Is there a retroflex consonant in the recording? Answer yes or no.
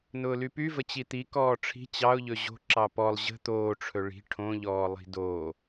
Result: yes